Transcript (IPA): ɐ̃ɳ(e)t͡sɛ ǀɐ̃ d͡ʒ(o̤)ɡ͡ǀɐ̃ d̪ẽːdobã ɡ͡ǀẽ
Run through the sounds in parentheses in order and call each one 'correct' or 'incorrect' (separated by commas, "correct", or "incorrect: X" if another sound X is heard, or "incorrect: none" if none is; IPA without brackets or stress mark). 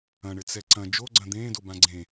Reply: incorrect: ɘ, incorrect: o